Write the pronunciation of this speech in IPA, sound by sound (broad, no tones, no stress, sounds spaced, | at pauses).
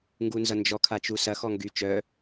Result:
ŋ ɡ u n z ʌ n d͡ʒ ɔ kʰ a t͡ʃ u s ɐ x ɔ ŋ ɡ y t͡ʃ œ